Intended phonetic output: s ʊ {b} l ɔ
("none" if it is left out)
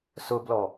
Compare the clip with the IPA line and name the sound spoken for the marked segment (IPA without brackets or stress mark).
b